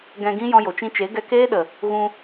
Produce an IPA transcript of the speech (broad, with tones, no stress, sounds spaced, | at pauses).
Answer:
ɡ ɛ̃˧ ɡ ĩ˦ j ɔ̃˧ j o˨ t͡ʃ ĩ˧ t͡ʃ e˨˦ ɡ ɛ˧ k eː˦ ɗ ə˨ | ɣ ũ˧